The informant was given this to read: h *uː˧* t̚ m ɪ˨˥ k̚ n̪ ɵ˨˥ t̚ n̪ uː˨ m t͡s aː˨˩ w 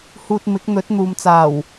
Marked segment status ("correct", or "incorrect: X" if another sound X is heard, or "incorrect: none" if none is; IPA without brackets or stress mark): correct